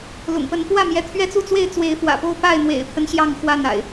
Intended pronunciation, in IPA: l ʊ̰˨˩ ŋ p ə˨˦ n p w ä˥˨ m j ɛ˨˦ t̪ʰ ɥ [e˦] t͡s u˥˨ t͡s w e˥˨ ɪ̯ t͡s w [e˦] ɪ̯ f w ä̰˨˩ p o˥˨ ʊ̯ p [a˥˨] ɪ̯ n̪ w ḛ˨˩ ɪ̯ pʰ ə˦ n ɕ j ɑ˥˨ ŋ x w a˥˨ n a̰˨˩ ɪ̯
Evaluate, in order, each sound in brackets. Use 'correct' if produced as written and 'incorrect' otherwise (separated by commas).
incorrect, incorrect, correct